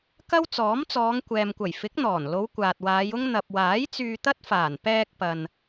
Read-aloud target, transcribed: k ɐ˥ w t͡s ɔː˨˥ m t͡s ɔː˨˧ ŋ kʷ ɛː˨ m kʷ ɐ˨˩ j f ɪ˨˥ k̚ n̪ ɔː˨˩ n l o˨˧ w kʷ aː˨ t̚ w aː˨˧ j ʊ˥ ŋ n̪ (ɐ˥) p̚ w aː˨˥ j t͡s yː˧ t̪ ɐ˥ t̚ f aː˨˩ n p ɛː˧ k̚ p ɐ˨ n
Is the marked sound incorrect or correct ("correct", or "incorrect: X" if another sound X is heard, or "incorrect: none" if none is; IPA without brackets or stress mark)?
incorrect: ɐ˨